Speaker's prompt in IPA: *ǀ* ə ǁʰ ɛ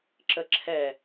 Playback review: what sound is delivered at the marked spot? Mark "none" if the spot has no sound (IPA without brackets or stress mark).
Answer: ǁ